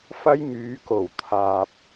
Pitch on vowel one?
high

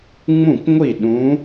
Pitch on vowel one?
falling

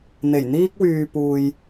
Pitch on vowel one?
low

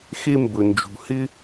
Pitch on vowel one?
high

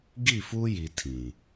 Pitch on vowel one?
falling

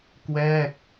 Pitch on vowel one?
falling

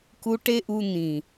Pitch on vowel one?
high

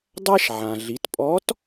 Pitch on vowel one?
high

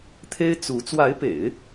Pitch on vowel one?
high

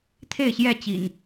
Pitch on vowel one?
falling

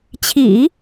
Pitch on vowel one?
low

